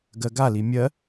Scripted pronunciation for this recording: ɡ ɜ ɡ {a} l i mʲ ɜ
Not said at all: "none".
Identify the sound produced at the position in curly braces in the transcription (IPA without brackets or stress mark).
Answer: a